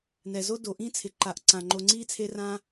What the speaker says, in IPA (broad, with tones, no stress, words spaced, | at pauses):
nɛ˩zo˦ do˩ʔĩ˥t͡sʰɪ˩ǃa˨ʔ ǀã˩ŋ͡ǃo˨ŋ͡ǀiː˥t͡sʰe˦ rã˦